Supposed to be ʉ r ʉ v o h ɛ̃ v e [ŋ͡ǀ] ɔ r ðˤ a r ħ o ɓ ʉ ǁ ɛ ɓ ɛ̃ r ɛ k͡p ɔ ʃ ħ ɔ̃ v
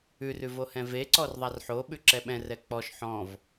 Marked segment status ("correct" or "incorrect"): incorrect